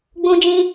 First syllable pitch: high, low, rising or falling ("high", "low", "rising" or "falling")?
high